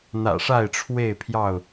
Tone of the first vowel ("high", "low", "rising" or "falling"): low